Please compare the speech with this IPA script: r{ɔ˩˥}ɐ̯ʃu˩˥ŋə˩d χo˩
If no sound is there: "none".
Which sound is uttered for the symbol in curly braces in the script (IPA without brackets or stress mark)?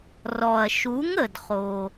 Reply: ɔ˩